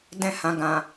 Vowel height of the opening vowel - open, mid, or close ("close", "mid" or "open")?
mid